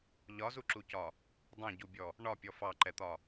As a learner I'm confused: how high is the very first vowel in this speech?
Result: low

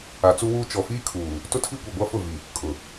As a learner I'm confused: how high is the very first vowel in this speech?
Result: low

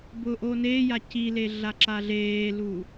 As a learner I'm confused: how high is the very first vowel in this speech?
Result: high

